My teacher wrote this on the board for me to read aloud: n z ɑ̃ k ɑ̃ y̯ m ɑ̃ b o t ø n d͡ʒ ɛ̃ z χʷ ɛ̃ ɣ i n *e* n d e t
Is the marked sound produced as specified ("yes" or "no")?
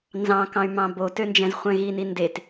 no